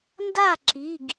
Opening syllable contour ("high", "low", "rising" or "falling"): falling